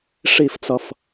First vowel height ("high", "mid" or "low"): high